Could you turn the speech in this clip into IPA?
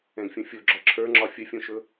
ɛ̃ ɡ fʲ ũ fʲ o ɡ͡ǁ ɒ ǁʰ ə˞ ŋ͡ǁ ɒ fʲ ə fʲ õ ʃ ɵ

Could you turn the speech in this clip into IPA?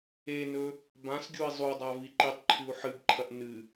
e n ɵ | b ã s ɡʲ u i̯ zˤ u dˤ a v i ǃ i tˤ ǃʰ ʉ u̯ ħ ɨ b ǃʰ ɐ ʔ n ɨ

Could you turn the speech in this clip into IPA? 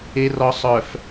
e˨ r ɔ˨ sˤ œ˨ f

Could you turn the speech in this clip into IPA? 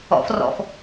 ɔ̰ f r ɔ̰ f

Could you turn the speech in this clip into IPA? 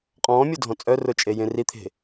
qʼ ɔ̃ː mʲ ʊ dʱ ɔ̃ t͡sʼ œ r ʊ t͡ʃʼ e j ẽ r i t̪ʰ e̤

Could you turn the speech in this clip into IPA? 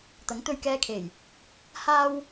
t̪ ɐ˨˥ ŋ t̪ ɵ˧ ɥ k ɛː˧ kʰ e˨˩ j | h aː˥ w

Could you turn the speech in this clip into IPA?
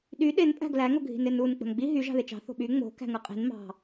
ɗ y ɗ e n pʼ æ̤ ɡ l æ ŋ o ɡʱ i̤ n e n u n k͡p o̤ n ɡ͡b i ɦ y ʒ ɑ̤ ð e t͡ʃ ɑ̤ θ o̤ ɓ y ŋ͡m o̤ k æ̤ ŋ ɯ qʼ i̤ n m ɑ̤

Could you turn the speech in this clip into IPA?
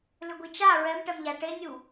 l ʏ ɡʷ i t͡ʃ a ɹ ɛ m ʈ ɛ m ʎ a ʈ e nʲ u

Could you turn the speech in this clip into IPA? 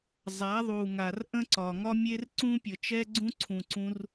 zˤ a˨˦ ðˤ u˨ ŋ a˨ r ʔ ə̃˦ ǀ ɒ˨ ŋ ɒ˦ mʲ e˦ r ǀ ũ˦ pʲ ə˨ t͡ʃ ɛ˦ ɡ͡ǀ ũ˦ ǀʰ ũ˨ ǀ ũ˧ r

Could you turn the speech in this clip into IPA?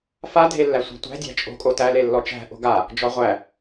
f a dʱ e lː æ sʷ a̤ tʷ æ̤ dʲ æ̤ t͡ʃʼ o̤ kʼ o t æ l e lː ɔ t͡ʃ æ̤ ʔ o̤ ɡ a | d͡ʒ ɔ ʁʷ æ

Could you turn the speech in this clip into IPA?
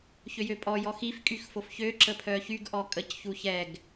ç ø j ø pʼ ɔ j ɔ x i f kʼ y x f o f ç ø ǁ ə pʰ œ ç y ɡ ʔ ɔ kʼ ə c ç u ç ɛ ɡ

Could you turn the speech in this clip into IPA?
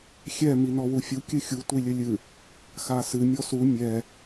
xʲ ɛ m i n ɔ w u fʲ u kʲ ɨ xʲ u tʷ i lʲ ɘ lʲ ɨ | x a s ɨ mʲ ɔ s u mʲ ɛ

